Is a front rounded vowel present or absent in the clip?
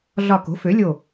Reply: present